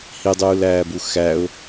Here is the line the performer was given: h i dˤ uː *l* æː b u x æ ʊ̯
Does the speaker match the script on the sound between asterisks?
yes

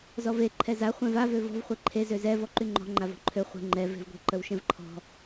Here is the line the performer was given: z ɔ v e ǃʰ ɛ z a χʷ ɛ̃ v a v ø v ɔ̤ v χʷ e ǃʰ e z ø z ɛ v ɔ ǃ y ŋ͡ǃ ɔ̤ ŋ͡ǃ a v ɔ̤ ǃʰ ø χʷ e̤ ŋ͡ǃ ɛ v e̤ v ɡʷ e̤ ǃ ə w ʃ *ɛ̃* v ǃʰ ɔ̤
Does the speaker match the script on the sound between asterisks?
yes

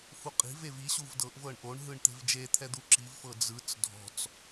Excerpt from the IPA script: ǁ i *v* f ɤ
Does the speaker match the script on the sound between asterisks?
yes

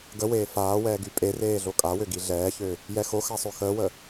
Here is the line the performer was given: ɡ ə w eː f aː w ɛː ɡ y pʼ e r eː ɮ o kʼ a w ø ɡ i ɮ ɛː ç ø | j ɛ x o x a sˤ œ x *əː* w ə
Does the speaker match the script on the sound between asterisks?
yes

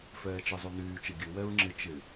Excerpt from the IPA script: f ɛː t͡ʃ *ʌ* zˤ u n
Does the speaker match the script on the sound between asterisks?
no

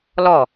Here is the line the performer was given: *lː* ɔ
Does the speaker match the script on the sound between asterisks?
no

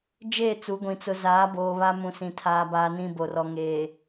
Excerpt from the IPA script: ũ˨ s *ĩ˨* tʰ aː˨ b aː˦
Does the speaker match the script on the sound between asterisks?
yes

